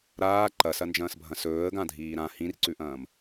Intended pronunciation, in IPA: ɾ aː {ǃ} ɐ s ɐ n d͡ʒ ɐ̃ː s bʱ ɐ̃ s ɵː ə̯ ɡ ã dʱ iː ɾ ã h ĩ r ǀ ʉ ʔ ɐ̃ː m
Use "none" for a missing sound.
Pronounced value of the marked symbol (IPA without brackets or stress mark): ǃ